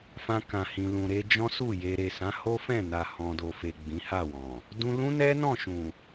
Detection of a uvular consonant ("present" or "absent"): absent